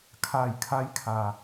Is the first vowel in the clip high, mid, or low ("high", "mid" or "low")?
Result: low